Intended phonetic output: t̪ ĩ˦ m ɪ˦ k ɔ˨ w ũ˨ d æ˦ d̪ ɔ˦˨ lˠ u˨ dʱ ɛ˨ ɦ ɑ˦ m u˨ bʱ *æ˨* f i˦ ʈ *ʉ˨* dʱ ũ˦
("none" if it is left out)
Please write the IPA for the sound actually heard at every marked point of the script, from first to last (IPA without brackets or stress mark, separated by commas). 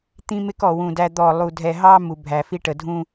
æ˨, ə˨